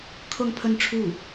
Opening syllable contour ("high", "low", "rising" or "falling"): falling